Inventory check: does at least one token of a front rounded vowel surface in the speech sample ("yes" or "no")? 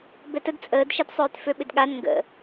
yes